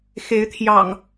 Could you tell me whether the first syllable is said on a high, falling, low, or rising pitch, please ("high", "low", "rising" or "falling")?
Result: rising